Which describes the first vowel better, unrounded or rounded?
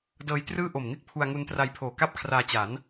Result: unrounded